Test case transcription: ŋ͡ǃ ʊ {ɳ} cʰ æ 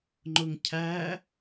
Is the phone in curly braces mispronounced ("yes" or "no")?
yes